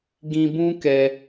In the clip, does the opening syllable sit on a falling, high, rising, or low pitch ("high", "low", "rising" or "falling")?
low